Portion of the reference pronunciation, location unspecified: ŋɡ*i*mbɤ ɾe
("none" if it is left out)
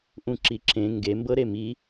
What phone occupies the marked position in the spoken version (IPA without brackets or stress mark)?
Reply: e